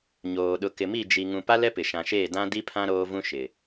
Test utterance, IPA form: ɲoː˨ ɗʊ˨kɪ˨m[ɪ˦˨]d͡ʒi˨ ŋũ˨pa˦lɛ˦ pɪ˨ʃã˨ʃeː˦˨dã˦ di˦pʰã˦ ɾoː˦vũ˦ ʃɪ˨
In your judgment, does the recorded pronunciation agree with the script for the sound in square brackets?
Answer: no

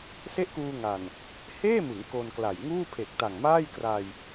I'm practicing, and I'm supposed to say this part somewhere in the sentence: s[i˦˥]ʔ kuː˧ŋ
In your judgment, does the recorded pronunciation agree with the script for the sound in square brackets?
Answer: no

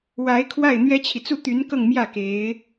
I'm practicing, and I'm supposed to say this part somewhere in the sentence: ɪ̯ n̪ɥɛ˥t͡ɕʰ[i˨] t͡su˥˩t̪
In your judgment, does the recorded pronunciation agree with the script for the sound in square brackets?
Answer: yes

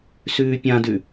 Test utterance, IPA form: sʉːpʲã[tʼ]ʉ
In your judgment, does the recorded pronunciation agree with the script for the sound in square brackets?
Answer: no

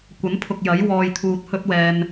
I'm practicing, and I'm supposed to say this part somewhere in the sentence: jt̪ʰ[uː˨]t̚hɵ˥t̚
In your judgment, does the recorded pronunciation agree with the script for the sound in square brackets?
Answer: no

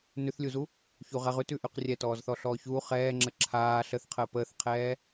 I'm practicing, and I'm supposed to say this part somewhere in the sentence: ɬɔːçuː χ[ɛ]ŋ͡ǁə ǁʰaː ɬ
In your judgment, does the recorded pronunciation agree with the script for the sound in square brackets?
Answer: no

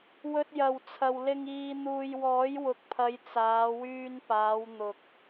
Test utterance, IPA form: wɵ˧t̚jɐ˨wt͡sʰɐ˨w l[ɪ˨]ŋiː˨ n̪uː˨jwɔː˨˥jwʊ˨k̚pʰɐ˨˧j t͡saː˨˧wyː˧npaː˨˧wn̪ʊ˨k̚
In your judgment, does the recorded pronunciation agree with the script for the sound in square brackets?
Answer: yes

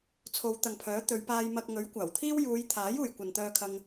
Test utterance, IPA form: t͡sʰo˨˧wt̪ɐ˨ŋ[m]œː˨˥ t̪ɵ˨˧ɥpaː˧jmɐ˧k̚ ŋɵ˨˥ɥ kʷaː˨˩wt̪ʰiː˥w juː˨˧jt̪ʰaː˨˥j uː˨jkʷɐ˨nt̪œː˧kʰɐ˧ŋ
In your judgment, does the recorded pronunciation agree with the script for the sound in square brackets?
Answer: no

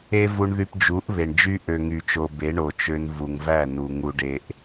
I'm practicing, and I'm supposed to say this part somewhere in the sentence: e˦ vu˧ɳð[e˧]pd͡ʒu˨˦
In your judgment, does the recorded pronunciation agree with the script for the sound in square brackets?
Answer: no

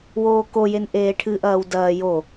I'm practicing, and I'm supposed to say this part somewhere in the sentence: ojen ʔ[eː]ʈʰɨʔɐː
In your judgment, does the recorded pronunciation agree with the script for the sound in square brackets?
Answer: yes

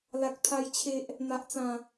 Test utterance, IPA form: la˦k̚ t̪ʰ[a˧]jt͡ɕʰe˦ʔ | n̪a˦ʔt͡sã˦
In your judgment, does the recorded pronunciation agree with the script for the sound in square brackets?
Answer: no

